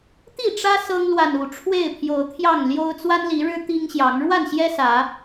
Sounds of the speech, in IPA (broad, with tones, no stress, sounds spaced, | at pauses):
t̪ i˥˨ ʈ͡ʂ ä˦ s ɤ˦ ŋ l w a˨ n u˨˩ ʈ͡ʂʰ w e˥˨ ɪ̯ pʰ j o˨˦ ʊ̯ t̪ʰ j ɑ˥˨ ŋ l j o˦ ʊ̯ t͡s w a˦ n l i˨˦ ɻ ɻ̩˦ t̪ i˦ ŋ ɕ j ɑ˨˦ ŋ ɻ w a˥˨ n ɕ j ɛ˦ s ä˨˦